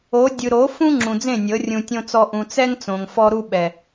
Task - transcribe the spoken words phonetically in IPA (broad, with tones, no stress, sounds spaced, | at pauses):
o˨˦ dʲ ɯ˨ ɾ o˨˦ f ũ˦ ŋ͡ǁ ũ˨ d͡z ẽ˦˨ nʲ ɤ˨˦ rʲ ũ˨ tʲ õ˧ t͡s ɔ˧ ʔ ũ˨ t͡s ɛ˦ ŋ t͡s õ˨ ŋ f ɔ˦ ɾ u˦ ɓ ɛ˨